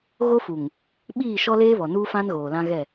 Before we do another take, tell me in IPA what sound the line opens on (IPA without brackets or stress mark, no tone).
ɣ